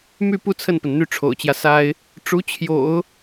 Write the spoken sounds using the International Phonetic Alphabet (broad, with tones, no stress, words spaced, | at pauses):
my˥˧pu˥˧ t͡sʰə˥˩npə˩n n̪y˥˩ʈ͡ʂʰo̰˨˩ʊ̯t͡ɕjä˦ sa˥ɪ̯ | ʈ͡ʂu˧˥t͡ɕʰjo̰˨˩˦ʊ̯